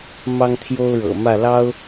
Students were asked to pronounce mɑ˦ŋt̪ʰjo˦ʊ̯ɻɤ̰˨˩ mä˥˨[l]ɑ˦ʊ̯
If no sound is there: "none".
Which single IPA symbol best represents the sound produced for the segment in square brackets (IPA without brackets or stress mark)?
l